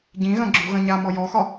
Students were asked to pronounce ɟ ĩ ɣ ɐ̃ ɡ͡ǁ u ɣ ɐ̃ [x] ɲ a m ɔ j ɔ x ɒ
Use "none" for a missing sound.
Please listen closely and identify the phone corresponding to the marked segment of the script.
none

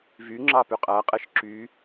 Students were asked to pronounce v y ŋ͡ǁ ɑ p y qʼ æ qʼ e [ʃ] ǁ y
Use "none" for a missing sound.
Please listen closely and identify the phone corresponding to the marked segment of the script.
ʃ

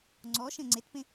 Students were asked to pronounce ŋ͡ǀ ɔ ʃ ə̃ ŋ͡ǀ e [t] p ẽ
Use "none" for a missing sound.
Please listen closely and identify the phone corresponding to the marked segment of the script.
t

